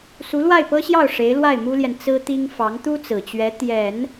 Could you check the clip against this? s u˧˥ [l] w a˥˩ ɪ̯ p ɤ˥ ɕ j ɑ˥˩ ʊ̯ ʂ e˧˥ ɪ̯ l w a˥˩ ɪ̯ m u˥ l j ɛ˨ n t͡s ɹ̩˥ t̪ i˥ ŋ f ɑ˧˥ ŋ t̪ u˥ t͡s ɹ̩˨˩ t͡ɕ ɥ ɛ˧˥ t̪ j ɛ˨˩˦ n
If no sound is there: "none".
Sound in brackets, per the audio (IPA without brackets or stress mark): l